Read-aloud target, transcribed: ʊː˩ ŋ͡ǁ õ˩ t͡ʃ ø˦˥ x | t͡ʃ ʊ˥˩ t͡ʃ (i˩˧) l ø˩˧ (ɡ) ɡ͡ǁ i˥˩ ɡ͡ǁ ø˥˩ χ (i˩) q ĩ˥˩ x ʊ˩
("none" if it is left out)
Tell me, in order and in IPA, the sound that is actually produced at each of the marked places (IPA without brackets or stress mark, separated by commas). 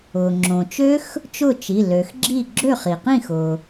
i˩˧˩, x, i˩